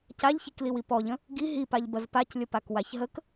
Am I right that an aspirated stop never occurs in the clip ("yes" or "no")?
yes